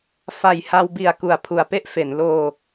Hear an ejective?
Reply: no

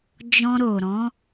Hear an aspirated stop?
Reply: no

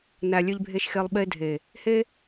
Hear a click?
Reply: no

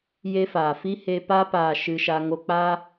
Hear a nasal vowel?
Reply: no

